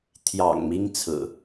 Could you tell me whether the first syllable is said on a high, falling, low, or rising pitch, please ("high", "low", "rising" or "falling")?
low